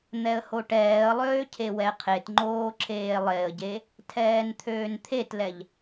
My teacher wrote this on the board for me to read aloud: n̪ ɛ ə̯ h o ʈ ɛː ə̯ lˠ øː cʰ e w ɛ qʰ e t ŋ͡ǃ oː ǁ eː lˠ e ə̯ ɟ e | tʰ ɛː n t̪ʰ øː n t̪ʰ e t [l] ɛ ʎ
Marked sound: correct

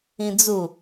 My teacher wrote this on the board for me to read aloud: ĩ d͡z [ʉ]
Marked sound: incorrect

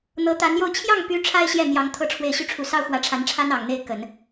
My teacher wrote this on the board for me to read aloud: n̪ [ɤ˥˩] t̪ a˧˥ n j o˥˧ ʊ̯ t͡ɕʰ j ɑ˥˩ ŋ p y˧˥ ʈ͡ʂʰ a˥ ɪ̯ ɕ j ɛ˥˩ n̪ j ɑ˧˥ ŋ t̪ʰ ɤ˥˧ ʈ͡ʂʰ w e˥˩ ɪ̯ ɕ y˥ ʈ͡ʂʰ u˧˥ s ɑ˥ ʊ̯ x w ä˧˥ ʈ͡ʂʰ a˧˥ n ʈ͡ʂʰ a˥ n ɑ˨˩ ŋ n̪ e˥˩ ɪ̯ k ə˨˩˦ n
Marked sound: incorrect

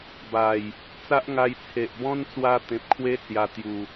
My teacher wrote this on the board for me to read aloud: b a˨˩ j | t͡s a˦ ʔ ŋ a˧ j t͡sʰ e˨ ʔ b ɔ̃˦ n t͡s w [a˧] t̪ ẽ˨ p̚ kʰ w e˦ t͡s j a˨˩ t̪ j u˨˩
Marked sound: correct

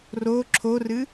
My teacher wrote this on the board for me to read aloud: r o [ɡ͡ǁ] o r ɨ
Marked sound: incorrect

